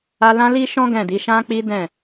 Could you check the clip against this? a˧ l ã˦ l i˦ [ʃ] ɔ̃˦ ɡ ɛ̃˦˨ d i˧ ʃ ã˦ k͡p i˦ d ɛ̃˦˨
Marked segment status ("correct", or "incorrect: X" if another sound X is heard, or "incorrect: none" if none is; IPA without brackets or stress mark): correct